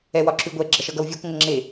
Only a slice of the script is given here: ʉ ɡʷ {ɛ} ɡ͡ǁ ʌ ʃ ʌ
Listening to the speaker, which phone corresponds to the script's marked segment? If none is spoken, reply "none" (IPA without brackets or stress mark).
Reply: ɛ